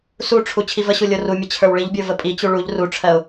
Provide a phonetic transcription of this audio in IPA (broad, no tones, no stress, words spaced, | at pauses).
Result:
suʈ͡ʂʰu t͡ɕʰivəɕu lʲorumʲə t͡ɕʰə˞wɭiʎbʲə˞ vəpʼit͡ɕu ɭuʎ ruʈ͡ʂʰɜʊ̯